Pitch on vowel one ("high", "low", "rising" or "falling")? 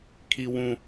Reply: high